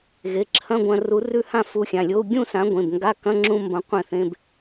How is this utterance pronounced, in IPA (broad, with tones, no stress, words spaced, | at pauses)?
ɣe˩˧˩ǁʰɐ̃˧˥˧ɡʷɐ̃˧ru˨˥ rʉ˧hã˧ fu˨˥xʲã˩˧˩lʲo˧˥˧u̯ ɡʲũ˥˨sã˨˥ ɡʷẽ˩˧˩bŋɡa˧˥˧ kɐ̃˧˥˧ŋ͡ǁũ˧ mbɐ̃˨˥ qʷẽ˥˨θẽ˧˥˧b